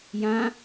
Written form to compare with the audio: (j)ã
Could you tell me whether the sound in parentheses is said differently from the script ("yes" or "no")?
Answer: no